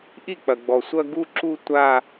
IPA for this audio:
ʔi˥˩k͡pɐ˨ɡ͡bɔ˨ sʷɐ˥˧ɡu˥˧ǁu˥˧ tʷa˥˧

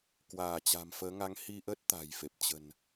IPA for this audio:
kwaː˧˩t͡ɕa̤˨˩mfəː˨˦ ŋa˨˦ŋhi˧ʔəː˦˥t̚ t̪a̤˨˩jfe˨˩p̚ t͡ɕə̤˨˩n

